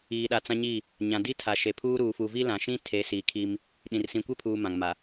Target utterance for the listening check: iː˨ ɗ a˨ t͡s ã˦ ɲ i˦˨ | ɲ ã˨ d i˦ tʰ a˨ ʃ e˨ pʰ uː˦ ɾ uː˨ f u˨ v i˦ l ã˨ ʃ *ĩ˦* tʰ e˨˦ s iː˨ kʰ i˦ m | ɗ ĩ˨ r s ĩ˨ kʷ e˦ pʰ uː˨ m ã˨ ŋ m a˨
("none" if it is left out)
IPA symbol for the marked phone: ĩ˦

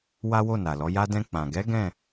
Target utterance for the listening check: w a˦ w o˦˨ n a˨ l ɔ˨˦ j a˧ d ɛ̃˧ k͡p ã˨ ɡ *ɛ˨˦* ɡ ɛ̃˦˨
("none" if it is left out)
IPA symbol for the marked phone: ɛ˨˦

